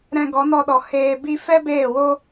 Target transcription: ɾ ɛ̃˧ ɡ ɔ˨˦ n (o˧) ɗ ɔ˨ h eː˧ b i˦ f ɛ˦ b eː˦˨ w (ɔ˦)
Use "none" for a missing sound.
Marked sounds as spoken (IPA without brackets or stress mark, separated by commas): ɔ˧, o˦